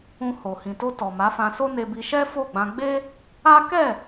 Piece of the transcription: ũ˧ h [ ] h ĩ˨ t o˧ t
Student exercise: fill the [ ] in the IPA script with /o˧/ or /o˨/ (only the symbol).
o˨